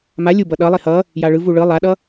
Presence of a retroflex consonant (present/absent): present